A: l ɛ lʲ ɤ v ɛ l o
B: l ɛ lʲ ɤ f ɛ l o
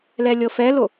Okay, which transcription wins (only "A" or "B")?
B